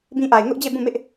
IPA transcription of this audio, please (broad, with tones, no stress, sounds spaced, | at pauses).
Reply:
b ĩ˦ ʔ a˨ ɪ̯ ŋ ʊ˦ ʔ d͡ʑ e˦˨ b ũ˦˨ m ɪ˦ ʔ